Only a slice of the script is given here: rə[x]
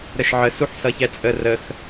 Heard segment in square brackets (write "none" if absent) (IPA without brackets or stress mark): x